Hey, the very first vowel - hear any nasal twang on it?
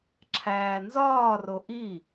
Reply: no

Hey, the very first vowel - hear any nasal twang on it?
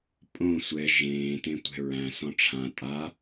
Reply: yes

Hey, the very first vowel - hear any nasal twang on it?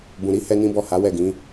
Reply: yes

